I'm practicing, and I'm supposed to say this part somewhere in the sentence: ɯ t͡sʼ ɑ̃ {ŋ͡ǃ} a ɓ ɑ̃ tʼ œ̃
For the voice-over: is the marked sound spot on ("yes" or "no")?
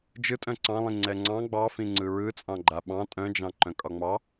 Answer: no